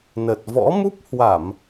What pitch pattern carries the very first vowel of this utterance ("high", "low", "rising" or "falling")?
low